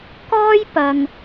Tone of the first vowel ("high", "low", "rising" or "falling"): high